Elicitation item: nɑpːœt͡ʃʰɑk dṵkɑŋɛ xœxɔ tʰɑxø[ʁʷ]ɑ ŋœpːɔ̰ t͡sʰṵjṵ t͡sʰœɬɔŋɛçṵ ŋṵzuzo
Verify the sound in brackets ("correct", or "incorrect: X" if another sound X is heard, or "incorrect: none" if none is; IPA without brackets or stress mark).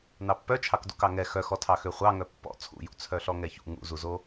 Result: incorrect: χʷ